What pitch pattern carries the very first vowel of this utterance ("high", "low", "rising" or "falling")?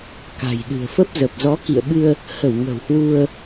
low